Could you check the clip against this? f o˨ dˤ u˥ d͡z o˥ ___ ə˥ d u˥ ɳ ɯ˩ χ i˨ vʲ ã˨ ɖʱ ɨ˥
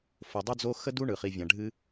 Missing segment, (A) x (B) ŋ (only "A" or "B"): A